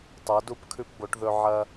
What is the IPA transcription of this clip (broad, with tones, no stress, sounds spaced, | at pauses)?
tˤ ɐ˩˧ d u˧ p kʰ ʉ˧ p b o˩˧ ʈ ð ɵ˧ ʕ ɐ˧